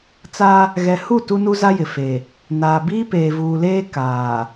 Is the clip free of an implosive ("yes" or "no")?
yes